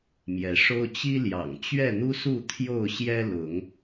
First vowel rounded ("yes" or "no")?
no